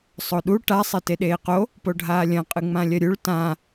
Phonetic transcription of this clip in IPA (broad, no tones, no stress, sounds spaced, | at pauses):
sˤ o ɗ u ʈ a sˤ e t e ɗ eː q o | p o ɖʱ aː lʲ ɐ̃ qʼ ɨ ŋ͡m ã lʲ ɐ ɾʲ u ɭ t ã